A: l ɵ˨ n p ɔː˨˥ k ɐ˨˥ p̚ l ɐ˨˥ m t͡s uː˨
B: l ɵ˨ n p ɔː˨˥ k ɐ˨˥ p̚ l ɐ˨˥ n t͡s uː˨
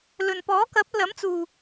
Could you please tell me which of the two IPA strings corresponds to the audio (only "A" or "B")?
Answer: A